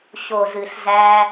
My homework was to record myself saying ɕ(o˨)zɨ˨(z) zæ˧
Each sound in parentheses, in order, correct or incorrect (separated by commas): correct, incorrect